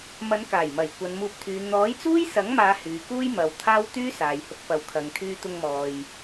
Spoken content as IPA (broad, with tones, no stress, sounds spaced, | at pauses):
m ɐ˨˧ n k aː˨˩ j m ɐ˨˩ j kʷ ɐ˨˧ n m uː˧ p̚ t̪ʰ yː˨˧ n̪ ɔː˨˥ j t͡s uː˥ j s ɐ˨˥ ŋ m aː˨˧ h yː˨˧ k uː˥ j m ɐ˨˧ w t̪ʰ aː˥ w t̪ yː˥ s aː˨ j h ʊ˧ k̚ p ɐ˨ w kʰ ɐ˨ ŋ t̪ʰ yː˧ t̪ ʊ˧ ŋ m ɔː˨ j